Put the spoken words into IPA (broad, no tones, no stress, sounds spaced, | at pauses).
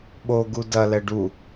ɓ o ɡ u d ɐ l ɛ ɖ u